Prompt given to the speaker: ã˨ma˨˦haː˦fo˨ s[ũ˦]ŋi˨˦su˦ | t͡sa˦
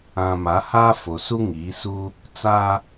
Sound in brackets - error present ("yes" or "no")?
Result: yes